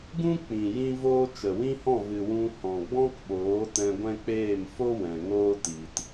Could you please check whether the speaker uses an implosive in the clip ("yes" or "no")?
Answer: yes